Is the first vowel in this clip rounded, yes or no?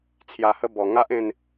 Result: no